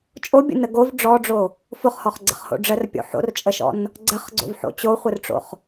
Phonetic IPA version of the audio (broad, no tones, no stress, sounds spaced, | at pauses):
t͡ʃʼ o bʲ ə̰ n ə ɡ o v ɖ͡ʐ ɔ ɖ͡ʐ o | f ʊ χ h ɔ χ ɡ͡ǀ ə̰ χ h o̰ ɖ͡ʐ ə r pʲ o̰ ħ o̰ r t͡ʃʼ ə ʃ ɔ̰ n | ɡ͡ǀ ə χ ɡ͡ǀ o̰ v ħ o̰ t͡ɕ o χʷ ə r ʈ͡ʂ o̰ χ